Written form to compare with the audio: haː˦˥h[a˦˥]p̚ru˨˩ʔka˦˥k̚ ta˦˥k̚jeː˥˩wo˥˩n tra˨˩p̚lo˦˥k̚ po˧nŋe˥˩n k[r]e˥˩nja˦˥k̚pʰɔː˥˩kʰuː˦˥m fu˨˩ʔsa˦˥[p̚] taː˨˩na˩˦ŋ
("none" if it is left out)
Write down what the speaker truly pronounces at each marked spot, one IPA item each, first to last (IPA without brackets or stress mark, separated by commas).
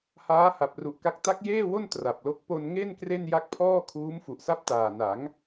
a˨˩, r, p̚